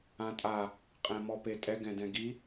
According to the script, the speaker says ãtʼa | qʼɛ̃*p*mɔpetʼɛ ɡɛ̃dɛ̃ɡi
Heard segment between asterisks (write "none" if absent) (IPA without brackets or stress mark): none